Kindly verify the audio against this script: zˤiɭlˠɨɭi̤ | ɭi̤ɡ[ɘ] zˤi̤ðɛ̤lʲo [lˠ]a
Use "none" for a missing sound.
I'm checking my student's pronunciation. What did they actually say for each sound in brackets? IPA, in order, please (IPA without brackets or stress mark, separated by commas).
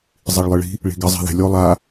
ɘ, lˠ